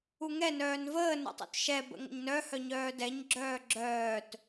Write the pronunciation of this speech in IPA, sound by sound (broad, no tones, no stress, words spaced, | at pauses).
uŋɛ nœːnvəː nə̰tˤṵtʃɛ bə̰ŋə̰ɲnœ hœɲœːdɛɲ ɡ͡ǁœːɡ͡ǁœːt